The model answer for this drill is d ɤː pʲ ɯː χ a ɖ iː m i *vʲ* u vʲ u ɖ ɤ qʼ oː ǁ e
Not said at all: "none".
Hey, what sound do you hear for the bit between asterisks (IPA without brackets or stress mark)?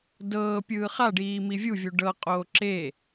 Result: vʲ